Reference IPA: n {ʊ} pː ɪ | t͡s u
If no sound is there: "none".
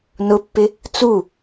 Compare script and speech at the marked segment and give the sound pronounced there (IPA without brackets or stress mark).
ʊ